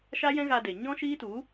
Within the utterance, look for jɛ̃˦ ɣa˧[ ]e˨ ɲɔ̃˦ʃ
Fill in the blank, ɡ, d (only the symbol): d